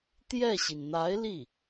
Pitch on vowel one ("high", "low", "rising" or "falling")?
falling